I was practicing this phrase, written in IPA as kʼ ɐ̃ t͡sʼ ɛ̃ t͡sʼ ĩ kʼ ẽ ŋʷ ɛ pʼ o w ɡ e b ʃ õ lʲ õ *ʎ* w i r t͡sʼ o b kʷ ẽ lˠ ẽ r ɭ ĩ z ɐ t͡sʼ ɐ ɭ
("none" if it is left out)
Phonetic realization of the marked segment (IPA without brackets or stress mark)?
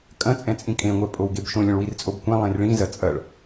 ɭ